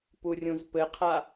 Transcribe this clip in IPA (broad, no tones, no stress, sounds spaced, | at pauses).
p u rʲ ũ z p ɘ qʰ a